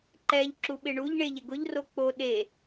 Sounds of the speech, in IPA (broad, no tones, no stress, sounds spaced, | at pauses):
ǃ ɛ ʎ ǁ u ɓ ɪ ɳ u ʎ ɳ e ʎ ɪ ɡ ʊ ʎ r o k͡p o ɗ e